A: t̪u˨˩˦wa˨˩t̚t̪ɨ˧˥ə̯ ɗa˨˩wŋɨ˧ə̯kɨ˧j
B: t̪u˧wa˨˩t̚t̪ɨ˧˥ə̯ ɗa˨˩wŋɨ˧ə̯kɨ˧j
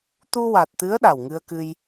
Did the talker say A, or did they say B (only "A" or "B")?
B